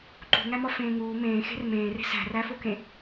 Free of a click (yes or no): no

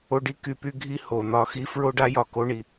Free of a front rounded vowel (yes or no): no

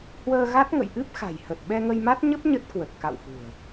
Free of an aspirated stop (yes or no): yes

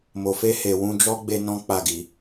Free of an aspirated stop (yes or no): yes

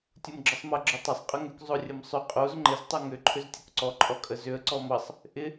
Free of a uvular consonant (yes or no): no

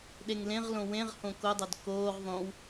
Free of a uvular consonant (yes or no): no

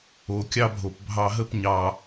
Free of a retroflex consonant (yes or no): yes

